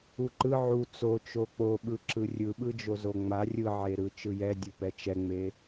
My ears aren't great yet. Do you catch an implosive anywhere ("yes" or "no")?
yes